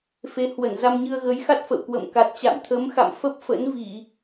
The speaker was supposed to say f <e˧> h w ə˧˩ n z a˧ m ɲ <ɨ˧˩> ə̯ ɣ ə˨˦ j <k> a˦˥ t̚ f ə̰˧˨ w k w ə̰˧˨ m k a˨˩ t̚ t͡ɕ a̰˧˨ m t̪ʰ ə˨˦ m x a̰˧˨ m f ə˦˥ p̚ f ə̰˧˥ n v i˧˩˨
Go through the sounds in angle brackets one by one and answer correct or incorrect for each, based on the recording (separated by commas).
incorrect, incorrect, incorrect